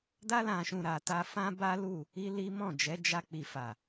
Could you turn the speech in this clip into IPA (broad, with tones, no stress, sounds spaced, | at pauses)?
d a˧ l ã˨ ʃ ũ˨ ɾ a˨ t a˧ f ã˦ b a˦ l u˦˨ | i˦ l i˦ m ɔ̃˦˨ d͡ʒ ɛ˨˦ d͡ʒ a˧ k͡p i˨ f a˨